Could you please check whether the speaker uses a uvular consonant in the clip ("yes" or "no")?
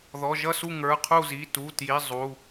yes